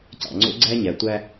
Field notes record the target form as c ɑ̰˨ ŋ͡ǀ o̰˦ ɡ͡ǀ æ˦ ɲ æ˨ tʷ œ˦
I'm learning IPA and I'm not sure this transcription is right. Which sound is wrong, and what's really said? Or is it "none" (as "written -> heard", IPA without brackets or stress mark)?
œ˦ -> æ˦